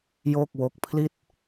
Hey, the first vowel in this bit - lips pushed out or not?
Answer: yes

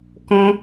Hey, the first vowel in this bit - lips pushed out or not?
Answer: yes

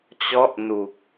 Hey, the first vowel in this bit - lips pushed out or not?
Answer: yes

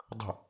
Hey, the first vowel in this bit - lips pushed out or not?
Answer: no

